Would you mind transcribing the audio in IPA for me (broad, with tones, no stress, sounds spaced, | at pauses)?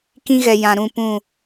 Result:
k ĩ˦ ɣ ɛ˨ j ã˨ ɾ ũ˦˨ p ũ˦˨